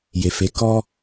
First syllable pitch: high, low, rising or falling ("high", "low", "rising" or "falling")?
low